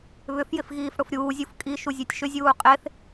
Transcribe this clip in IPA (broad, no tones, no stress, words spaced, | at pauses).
βʏfjɪfɣiːf ɽʊfɾʲuːzʲuf kʼiʃuzʲɛtʲ ʃʏzʲuː qʼeθ